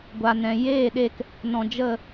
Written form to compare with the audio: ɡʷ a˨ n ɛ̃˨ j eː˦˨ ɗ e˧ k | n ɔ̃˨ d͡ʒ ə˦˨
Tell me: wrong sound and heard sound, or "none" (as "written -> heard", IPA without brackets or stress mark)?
none